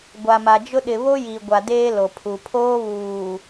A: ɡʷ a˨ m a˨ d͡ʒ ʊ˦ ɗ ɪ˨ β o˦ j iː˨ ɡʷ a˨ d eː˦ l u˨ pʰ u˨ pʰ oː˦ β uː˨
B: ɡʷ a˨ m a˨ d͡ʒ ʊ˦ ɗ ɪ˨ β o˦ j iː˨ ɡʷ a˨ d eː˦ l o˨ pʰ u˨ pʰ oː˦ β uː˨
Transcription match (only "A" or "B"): B